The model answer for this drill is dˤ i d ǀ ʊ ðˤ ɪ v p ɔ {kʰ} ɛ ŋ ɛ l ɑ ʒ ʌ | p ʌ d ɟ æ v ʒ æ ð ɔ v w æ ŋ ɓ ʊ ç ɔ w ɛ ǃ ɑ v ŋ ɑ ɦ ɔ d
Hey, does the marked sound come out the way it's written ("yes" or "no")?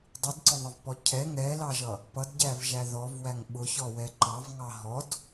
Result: no